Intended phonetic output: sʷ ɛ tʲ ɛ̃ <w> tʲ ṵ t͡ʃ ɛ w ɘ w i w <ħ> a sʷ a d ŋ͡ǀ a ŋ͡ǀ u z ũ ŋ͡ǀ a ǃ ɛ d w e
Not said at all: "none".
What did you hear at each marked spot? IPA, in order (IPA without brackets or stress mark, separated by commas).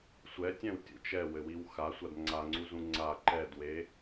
w, x